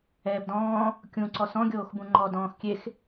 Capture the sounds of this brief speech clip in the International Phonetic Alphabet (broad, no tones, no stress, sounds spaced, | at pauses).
ɛː b d ɔ̃ː | kʲ ũ ǀ ɔ s ɔ̃ ɡʲ oː x b ũ ŋ͡ǃ ɔ d ɔ̃ː x kʲ e x